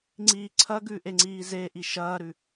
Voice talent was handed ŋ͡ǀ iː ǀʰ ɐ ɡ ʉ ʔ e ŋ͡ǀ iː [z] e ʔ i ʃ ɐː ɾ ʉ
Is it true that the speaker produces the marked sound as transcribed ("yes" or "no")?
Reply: yes